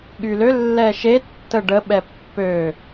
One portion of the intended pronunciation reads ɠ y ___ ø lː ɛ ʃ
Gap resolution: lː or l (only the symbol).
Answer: l